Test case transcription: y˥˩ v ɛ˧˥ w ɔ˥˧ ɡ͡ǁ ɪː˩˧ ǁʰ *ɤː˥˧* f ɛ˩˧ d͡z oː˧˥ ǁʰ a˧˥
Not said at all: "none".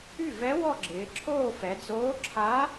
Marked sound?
oː˥˧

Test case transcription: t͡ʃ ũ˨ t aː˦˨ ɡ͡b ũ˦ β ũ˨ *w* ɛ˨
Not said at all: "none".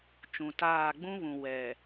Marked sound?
w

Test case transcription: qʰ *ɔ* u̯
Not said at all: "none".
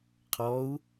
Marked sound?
ɔ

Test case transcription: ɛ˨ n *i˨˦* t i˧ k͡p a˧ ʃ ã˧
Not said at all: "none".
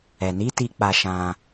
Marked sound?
i˨˦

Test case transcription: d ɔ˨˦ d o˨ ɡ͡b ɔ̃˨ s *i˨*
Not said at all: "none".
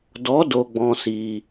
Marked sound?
i˨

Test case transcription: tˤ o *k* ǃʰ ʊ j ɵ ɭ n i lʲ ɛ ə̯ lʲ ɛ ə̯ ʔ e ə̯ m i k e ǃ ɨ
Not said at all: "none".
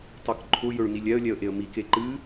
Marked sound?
k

